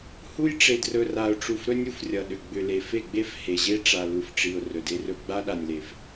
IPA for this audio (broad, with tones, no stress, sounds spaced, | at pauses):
h u˦ j ʈ͡ʂ e˨ d r ɵ˨ r a˨ ʊ̯ ʈ͡ʂ u˨ f ɾ ɵ˦ nʲ u˨ f rʲ ʌ˨ ɗ ʏ˨ ɡ͡b ʏ˨ l e˨ f e˦˨ ɡ͡b e˦ f h e˨ ʑ e˦ ʈ͡ʂ a˨ l u˨ f ʈ͡ʂ i˨ ʊ̯ r ɵ˨ d e˦ r ɵ˦ ɡ͡b a˦ ɗ a˨ nʲ l e˨ f